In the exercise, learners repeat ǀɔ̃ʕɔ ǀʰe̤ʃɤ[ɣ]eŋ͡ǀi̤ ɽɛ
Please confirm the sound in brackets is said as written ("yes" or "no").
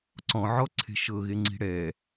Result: yes